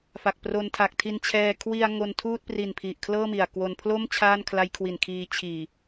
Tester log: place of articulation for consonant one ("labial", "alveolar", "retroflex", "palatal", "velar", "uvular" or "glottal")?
labial